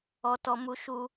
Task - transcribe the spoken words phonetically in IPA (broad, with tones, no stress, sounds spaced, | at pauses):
ɔ˦ t ɔ˦ m u˦ ʃ u˦